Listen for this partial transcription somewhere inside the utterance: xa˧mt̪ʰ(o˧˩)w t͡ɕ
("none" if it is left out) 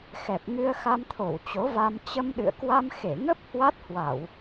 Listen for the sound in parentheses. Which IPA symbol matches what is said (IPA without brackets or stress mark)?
o˧˩